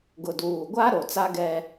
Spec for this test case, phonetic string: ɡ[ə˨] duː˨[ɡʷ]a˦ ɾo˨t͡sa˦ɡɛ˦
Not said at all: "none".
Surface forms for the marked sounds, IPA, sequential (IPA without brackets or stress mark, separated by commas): ʊ˨, ɡʷ